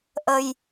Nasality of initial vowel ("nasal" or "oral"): oral